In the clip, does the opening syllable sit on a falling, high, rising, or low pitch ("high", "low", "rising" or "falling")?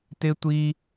high